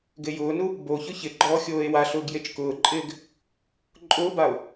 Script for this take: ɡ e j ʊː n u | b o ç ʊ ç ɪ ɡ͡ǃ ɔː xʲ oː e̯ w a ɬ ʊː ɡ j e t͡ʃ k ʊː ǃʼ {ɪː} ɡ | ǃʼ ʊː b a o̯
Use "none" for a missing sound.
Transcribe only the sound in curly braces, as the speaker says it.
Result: ɪː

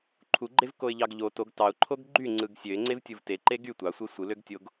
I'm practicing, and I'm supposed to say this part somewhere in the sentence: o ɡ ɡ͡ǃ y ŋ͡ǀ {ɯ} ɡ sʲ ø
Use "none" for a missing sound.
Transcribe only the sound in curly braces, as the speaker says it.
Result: ɯ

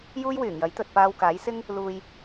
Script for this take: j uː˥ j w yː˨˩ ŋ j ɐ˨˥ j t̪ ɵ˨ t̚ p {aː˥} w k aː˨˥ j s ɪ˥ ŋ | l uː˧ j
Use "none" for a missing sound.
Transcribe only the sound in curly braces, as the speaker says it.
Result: aː˧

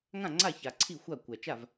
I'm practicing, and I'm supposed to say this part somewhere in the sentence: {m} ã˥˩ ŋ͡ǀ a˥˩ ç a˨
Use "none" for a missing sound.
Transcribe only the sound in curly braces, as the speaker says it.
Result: ŋ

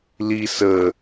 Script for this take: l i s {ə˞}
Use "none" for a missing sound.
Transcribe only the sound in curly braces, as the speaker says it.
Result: ə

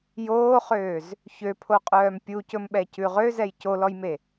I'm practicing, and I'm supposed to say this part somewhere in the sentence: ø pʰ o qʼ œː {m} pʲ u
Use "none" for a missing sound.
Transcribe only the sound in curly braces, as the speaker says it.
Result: m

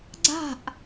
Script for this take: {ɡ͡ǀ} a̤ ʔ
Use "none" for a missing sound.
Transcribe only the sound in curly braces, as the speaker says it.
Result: ɡ͡ǀ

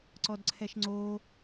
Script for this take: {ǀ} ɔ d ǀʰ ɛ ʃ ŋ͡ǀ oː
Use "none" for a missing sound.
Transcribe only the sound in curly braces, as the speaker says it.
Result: ǀ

